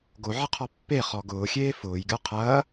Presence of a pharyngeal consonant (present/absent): present